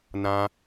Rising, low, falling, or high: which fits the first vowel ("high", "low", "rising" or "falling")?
high